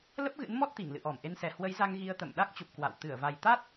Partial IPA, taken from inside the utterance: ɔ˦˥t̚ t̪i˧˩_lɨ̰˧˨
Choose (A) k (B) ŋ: B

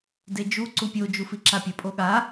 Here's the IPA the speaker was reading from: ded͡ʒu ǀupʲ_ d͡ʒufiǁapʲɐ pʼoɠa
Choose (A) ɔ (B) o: B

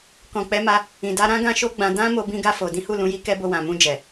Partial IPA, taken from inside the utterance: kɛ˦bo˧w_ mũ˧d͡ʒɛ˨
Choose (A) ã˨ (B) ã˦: A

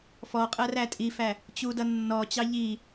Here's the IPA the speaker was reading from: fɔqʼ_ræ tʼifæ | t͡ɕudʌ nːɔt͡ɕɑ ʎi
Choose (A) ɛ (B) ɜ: B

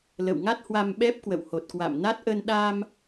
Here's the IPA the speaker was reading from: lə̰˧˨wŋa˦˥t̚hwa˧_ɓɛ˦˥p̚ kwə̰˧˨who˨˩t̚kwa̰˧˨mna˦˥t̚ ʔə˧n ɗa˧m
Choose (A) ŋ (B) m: B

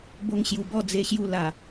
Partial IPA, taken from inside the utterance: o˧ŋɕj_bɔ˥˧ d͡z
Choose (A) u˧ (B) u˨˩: B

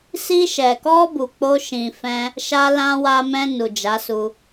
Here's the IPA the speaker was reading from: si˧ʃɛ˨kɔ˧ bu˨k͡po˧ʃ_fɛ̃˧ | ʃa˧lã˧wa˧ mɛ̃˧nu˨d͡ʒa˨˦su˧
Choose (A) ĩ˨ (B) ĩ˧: A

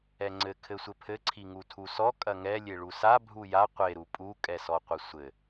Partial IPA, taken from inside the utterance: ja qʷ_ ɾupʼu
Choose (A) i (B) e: B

